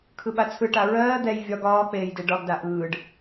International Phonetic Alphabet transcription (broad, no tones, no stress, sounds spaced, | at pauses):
kʰ ɯ ɓ a t͡sʰ ɯ ʈ a ɹ ɜː d̪ ɛ j vʲ ɒ ɡ ɒː k͡p eː j d e ɖ ɒ ɡ d a ʔ ɯː ɖ